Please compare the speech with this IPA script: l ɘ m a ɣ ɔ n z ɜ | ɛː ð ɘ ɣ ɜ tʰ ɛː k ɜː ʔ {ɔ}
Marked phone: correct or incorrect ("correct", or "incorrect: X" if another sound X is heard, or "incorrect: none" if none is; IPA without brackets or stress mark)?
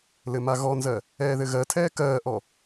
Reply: correct